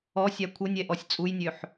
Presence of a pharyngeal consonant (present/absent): present